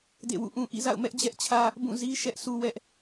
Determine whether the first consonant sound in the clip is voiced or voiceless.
voiced